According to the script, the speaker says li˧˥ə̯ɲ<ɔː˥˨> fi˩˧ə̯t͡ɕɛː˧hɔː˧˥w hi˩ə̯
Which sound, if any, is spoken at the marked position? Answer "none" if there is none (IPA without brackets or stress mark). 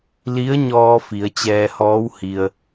ɔː˧